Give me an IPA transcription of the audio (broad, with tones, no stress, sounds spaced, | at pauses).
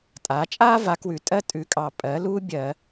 tʼ a˩˥ t͡ʃʼ aː˥ v a˩˥ k w ʉ˨ tʼ ɜ˥ tʼ ʉ˩˥ kʼ ɑ˨ pʼ ɜ˩˥ l uː˥ bʲ ɜ˨˩˦